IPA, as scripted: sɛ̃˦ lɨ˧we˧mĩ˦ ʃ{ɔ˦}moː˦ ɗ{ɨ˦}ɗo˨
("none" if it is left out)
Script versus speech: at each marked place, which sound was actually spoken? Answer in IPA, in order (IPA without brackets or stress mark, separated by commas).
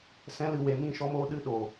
ɔ˦, ɨ˦